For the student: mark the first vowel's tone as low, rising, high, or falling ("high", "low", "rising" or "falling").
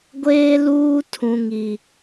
high